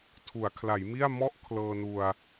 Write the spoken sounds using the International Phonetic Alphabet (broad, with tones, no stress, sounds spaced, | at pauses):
tʰ u˩˦ a̯ kʰ l a˩˦ j m i˥˩ a̯ m ɔ˦˥ ʔ kʰ l ɤː˧ n u˧ a̯